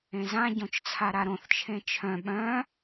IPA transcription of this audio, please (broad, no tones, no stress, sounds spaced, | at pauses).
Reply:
ẽ z ã ɟ õ t͡ʃ t͡sʰ a ɾ a ɾ õ θ t͡ʃʰ ẽ t͡ʃʰ œ̃ ɓ œ̃